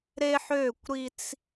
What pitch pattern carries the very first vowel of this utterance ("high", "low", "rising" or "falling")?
high